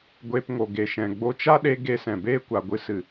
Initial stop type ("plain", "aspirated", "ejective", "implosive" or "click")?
plain